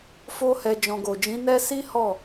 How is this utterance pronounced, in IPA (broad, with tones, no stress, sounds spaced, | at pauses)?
f o˦ h ɛ˧ d͡ʒ ɔ̃˨ ɡ o˨ d͡ʒ ĩ˨˦ n ɛ˦ s i˦ h ɔ˦˨